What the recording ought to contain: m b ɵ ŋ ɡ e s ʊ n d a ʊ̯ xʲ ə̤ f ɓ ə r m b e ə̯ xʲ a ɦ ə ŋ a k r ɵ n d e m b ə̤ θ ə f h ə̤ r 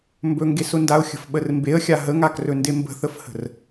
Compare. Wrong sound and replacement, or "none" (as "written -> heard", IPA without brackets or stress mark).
none